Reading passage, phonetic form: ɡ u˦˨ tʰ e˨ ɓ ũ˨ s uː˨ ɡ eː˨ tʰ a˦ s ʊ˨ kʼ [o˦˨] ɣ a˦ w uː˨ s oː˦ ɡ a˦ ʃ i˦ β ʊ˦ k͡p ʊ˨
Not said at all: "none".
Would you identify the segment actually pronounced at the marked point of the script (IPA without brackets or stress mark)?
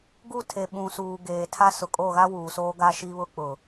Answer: o˦˨